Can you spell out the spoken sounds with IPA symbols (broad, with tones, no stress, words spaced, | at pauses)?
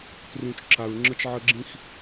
trũ˨t͡ʃǁa˨ɹŋ͡ǁə˦t͡ʃʕə˦ ɡ͡ǁĩ˦x